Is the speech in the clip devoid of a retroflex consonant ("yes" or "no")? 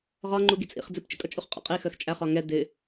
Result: yes